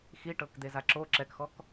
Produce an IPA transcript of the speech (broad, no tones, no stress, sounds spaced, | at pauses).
x i ʈ ɤ k d̪ e z a ǁ o ǁ ɛ k x ɔ k